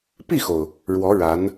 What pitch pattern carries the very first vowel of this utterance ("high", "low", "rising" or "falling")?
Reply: falling